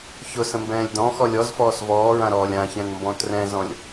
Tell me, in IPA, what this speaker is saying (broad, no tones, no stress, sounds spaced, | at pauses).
ç ʊ s ə̃ m b ɛ̃ː lʲ d ɔ̃ x ɔ lʲ ɔ z f ɔː s v ɔː ɹ ã ɾ ɔː lʲ ã ç ɛ̃ n m b ɔ̃ t r ɛ̃ z ɔ̃ lʲ